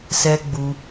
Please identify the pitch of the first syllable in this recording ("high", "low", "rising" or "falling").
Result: high